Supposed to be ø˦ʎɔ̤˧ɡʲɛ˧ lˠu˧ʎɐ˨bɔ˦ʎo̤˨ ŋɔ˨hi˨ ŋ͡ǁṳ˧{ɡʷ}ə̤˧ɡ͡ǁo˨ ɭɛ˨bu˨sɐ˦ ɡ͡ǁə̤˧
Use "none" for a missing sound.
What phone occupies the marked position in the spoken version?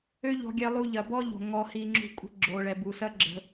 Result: kʷʼ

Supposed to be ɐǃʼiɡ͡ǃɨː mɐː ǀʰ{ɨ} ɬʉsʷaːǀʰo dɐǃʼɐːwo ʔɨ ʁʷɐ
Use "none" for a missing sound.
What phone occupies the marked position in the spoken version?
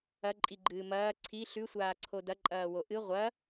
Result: i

